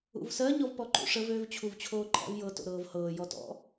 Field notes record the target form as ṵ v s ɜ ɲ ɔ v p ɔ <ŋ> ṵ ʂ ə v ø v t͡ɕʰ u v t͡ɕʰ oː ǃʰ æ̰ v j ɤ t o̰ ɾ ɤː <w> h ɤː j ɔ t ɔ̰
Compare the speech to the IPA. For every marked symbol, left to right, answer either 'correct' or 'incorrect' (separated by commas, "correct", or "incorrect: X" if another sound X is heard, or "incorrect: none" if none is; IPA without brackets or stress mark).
incorrect: ǃ, incorrect: v